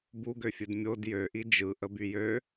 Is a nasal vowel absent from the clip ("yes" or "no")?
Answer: yes